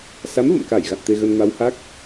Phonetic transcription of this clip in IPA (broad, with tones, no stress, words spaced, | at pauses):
sa˨˦mvə̰˧˨mka˧˩j ɣa̰˧˨nt̪e˧ɣə˧n ma˨˦wha˦˥k̚